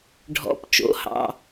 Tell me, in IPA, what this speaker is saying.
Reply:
ɖʱɔ̰˩˧˩p t͡ʃo̰˩˧˩hɑ̰˩˧˩

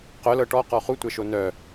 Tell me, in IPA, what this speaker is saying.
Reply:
qœlɤ ʈɔqɔ χutʷɛʃo nœ

